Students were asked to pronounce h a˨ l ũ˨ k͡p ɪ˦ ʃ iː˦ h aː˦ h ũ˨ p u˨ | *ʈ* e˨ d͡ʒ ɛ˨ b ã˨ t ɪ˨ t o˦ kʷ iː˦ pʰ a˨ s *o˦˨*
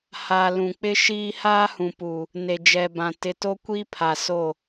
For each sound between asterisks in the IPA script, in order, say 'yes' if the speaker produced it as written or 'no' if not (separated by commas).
no, yes